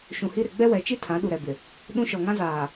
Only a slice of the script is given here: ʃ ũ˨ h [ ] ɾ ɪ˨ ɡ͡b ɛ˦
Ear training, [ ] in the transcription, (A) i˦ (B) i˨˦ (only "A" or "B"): A